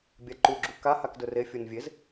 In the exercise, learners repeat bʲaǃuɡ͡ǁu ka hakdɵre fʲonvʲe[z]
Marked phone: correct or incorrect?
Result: correct